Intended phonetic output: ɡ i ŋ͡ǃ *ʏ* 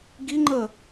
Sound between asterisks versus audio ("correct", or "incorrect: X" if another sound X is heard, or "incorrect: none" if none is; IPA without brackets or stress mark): incorrect: ə